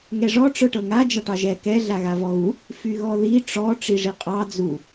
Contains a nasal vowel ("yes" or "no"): no